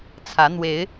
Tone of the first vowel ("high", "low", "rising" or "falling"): rising